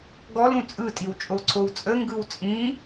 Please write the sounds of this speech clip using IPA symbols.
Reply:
ɡ ɔ l ũ t͡sʼ ɯ tʼ i w t͡ʃʼ o ǀʰ o w t͡sʼ ə ŋ ɡ ɯ w t͡sʼ ĩ

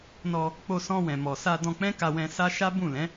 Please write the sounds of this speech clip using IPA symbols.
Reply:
n ɔ˧ | k͡p o˧ s ɔ̃˧ w ɛ̃˨ m ɔ˨ s a˧ d ɔ̃˧ k͡p ɛ̃˦ k a˧ w ɛ̃˧ s a˦ ʃ a˦ b ũ˦˨ l ɛ̃˨˦

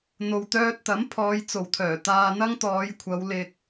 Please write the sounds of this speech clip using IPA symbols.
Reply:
n̪ o˨ w t̪ œː˧ t̚ t̪ ɐ˨˥ m pʰ ɔː˨˧ j t͡s o˨˩ w t̪ʰ œː˨˩ t̪ aː˨ n̪ ɐ˧ ŋ t̪ ɔː˨˧ j kʷʰ ɐ˨˧ w l ɪ˨ k̚

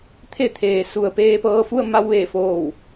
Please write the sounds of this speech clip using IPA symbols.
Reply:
t̪ʰ e˧˩ t̪ʰ eː˩ s u˩ ə̯ p eː˧ p ɤː˧ f u˥˨ ə̯ m a˧ w ʋ eː˧˩ f oː˧˩ w

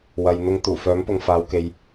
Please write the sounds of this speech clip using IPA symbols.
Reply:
w ɐ˨ j n̪ ʊ˧ ŋ t̪ uː˨˩ f œː˨˥ m p ʊ˨ ŋ f aː˨˧ w k e˨ j

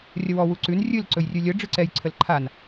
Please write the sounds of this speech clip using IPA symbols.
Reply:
rʲ ə w ɔ w u ǀ ʉ n rʲ ɨ l ǀ ɵ j rʲ ʉ lʲ ə ɖ͡ʐ ɨ ǀ ɛ j ǀʰ ə l ǃʰ a n

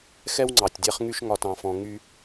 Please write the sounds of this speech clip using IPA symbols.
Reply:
x ɛ˦ w ŋ͡ǀ ɑ˨ tʲ dʲ a˦ χ ŋ y˦ ʃ ŋ ɒ˦ t ɑ̃˦ f ɔ̃˦ ŋ y˦

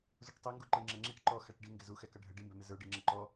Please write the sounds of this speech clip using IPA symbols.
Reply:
z u ʈ tˤ i ŋ ɡ u ǃ ɪ ŋ͡ǁ ɛ ŋ͡ǁ i ʈ ǃ ɔ x æ ʈ ɖ i ŋ ɡ ɪ z u x ɛ k ʌ ɖʱ ə ɖ i m b ɛ m ɪ z ə˞ ɖ i ŋ͡ǁ ə ǃ ɔ

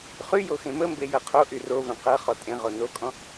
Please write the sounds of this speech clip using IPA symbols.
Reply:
χ y j o x ẽ m ə m b e j ɤ qʰ o ʔ y r o v ẽ q ɤ χ ɔ tʼ ẽ ʁ o n o kʼ ɔ̃

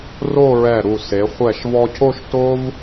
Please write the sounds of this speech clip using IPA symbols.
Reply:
r o˥˧ ɹ ɛ˧˩ ɾ u˧˩ s e˩˧ χʷ ɛ˧˩ ʃ v ɔ˧ cʰ o˥˧ ʃ t o˥ v

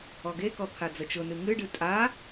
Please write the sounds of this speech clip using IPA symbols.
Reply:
ɔ ɡ e k ɔ t̪ʰ a d͡z ə t͡ʃ ʊ n ɨ ŋ ɨ ɖ ɨ tʼ a

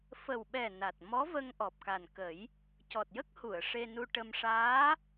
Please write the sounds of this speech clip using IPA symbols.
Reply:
f ə˨˩ w ɓ ɛ˨˩ n a˨˩ t̚ m ɔ˧˥ v ə˧ ŋ ʔ ɔ˨˩ p̚ k a˨˩ n k ə˨˩˦ j | c ɔ˨˩ t̚ j ə˦˥ k̚ h u˨˩˨ ə̯ ʂ e˧ n u˧ ʈ ə˧ m ʂ aː˧˥

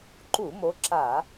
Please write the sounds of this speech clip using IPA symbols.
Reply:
ǃ u˧˩˧ m o˨˦ ǁ a˧˩˧

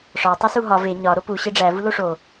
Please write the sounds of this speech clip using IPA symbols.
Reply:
ʂ ɒ tˤ i s u ɦ ɒ v e ɲ ɒ ɾ o p u ɕ e ɖ͡ʐ æ v u l o ʂ o

